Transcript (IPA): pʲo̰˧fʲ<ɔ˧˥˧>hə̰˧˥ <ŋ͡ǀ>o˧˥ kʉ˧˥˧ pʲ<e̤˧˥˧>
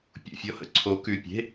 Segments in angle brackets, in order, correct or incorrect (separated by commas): correct, incorrect, correct